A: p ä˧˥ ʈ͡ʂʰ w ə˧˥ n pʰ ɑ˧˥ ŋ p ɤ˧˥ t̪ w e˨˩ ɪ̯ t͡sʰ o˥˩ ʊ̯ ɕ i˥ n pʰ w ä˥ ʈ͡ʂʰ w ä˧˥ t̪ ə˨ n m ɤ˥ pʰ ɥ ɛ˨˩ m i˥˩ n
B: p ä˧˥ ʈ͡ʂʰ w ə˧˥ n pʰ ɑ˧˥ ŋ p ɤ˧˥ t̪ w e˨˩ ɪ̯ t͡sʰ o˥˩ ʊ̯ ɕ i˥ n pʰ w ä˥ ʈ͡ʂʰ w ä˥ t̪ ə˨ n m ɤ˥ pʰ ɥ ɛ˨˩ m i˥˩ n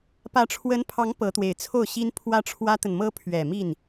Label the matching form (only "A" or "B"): B